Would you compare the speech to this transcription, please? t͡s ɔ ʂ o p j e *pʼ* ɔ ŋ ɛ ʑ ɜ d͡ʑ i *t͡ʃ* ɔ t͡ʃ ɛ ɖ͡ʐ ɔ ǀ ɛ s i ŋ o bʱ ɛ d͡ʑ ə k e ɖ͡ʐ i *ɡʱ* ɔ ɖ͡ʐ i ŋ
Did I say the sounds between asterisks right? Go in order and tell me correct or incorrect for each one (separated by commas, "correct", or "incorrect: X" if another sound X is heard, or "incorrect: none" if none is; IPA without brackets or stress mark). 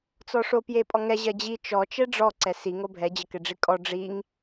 correct, correct, incorrect: kʼ